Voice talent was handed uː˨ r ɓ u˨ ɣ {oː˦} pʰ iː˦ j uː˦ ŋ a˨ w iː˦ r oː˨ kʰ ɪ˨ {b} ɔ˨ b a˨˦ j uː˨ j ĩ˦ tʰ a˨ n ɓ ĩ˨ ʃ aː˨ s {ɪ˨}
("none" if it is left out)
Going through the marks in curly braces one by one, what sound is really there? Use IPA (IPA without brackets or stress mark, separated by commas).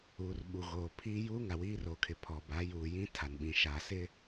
oː˨, pʰ, ɪ˦